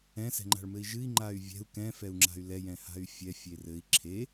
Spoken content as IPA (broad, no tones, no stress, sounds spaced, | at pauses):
ɛ̃ s ɛ̤ ŋ͡ǃ a̤ ɭ m ɘ i̯ ʒ ɨ i̯ ŋ͡ǃ a y̯ vʲ ɛ̤ u̯ k ɛ̃ f ɛ u̯ ŋ͡ǁ a̤ y̯ l ɛ j ɛ̃ h a̤ y̯ fʲ ɛ fʲ e r ɘ i̯ ǁʰ e